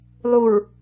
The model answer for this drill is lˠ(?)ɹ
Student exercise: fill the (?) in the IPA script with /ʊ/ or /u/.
u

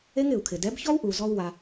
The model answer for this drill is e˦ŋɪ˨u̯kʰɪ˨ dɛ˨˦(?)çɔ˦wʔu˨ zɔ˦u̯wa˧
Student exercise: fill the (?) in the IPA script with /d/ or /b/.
b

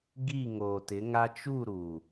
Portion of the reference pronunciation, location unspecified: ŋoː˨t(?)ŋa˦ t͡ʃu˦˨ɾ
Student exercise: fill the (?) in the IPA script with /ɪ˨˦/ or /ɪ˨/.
ɪ˨˦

